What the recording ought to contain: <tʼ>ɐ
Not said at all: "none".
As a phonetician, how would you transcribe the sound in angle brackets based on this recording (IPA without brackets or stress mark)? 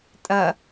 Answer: tʼ